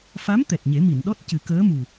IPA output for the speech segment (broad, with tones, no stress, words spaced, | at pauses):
fa˧˥m t̪ɛ˨˩t̚ɲe˨˩˦ mi˨˩˨nɗɔ˦˥t̚cɨ˨˩˦ kəː˧˥mu˨˩